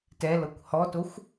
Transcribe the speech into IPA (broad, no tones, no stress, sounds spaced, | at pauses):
t ɛ l ɤ kʷ h ɔ t o xʷ